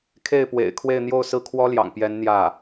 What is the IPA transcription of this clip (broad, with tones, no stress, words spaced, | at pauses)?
kʰe˥˩ɪ̯pwḛ˨˩ɪ̯ kʰwe˥˧ɪ̯n̪jo˥˧ʊ̯sɹ̩˥˩ kʰwɔ˥ljɑ̰˨˩ŋpjɛ˧˥n n̪jä˥˩